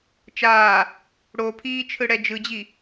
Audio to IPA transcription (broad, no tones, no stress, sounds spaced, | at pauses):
t͡ʃ aː | ɽ o pʰ iː t͡ʃʰ ɯ ɽ ɛ d͡ʒ ɯ d͡ʑ i